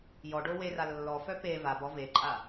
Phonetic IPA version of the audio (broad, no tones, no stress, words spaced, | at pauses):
jɔɖo wera lːɔfœ pe vab ɔveǃʼa